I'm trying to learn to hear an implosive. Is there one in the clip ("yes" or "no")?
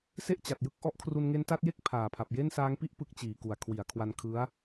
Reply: no